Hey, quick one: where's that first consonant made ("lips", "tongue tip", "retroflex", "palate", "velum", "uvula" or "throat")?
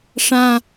retroflex